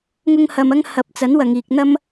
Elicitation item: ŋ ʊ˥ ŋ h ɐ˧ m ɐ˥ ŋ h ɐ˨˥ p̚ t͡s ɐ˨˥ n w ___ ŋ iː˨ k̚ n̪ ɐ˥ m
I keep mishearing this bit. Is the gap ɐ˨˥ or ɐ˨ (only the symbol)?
ɐ˨